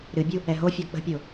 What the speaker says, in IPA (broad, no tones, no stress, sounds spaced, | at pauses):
ɾ ɨ bʲ u | ɛ ɦ o fʲ ɔ k͡p ə̤ pʲ o